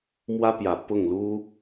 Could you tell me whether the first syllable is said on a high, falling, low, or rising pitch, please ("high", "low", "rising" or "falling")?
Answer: high